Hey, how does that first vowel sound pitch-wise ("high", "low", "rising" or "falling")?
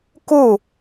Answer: falling